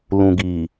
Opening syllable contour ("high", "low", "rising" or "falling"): low